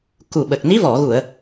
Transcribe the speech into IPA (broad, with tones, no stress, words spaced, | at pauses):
ku˨˩ɓə˨˩k̚ ni˧˥vɔ˨˩˨ɣu˨˩˨ə̯